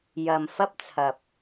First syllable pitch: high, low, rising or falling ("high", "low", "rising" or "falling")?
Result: low